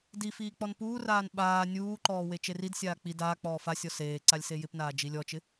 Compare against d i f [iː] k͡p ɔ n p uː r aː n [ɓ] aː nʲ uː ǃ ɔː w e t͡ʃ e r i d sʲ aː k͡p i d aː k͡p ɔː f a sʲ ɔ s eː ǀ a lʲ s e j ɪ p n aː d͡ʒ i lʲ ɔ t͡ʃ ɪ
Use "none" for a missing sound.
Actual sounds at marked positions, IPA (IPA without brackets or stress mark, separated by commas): iː, ɓ